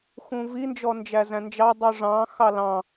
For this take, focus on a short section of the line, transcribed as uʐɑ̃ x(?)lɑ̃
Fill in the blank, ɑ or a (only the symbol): ɑ